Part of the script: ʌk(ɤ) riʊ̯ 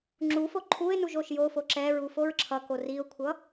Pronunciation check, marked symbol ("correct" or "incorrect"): incorrect